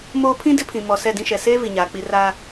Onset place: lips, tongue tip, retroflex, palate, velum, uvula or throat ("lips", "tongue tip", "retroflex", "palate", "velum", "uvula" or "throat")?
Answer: lips